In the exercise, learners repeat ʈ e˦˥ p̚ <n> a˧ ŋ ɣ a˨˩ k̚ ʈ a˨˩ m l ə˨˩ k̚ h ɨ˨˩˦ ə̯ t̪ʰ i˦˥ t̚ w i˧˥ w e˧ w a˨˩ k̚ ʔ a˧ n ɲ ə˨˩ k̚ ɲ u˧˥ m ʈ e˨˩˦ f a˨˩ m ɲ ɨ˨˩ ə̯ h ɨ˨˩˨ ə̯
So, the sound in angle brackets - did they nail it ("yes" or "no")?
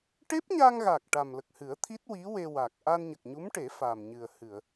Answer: no